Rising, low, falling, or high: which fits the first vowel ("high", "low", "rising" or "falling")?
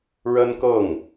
high